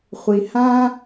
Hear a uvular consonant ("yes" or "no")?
yes